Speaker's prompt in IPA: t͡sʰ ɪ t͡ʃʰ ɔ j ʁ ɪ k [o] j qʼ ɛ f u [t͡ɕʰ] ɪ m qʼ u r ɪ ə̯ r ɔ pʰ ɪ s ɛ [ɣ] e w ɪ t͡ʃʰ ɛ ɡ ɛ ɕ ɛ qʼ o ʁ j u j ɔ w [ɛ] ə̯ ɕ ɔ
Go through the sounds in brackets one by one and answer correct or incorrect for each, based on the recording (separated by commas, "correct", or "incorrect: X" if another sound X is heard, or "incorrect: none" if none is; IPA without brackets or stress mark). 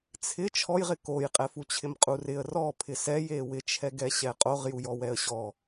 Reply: correct, correct, incorrect: j, correct